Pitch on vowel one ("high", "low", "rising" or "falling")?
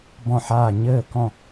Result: falling